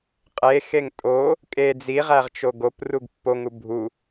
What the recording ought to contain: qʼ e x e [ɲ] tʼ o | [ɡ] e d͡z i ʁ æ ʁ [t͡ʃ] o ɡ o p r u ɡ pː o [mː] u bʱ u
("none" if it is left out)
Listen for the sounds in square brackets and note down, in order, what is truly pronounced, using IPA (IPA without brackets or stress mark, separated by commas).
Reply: ŋ, kʼ, t͡ʃ, ŋ